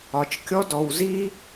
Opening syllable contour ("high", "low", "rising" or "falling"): low